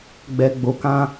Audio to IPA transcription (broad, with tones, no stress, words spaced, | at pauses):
ɡ͡bɛ˨ɡ͡bo˨kã˦